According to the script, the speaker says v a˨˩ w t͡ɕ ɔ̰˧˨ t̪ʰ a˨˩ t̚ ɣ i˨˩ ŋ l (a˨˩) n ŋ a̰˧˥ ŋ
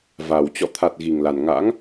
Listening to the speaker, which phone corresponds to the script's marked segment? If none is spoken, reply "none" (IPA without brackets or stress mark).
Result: a˨˩